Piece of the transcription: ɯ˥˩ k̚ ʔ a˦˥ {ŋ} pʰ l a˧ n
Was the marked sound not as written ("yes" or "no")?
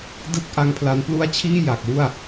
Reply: no